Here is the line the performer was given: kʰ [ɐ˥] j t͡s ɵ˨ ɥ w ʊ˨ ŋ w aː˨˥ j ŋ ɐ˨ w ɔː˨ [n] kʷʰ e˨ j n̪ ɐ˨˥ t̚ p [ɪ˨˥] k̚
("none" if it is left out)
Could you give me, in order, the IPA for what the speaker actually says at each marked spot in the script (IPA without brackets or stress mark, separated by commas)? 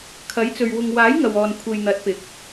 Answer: ɐ˨˥, n, ɪ˨